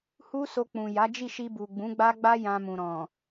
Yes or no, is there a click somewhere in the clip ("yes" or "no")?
no